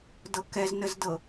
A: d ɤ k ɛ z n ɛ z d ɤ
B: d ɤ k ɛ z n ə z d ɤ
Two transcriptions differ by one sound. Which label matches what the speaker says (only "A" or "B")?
B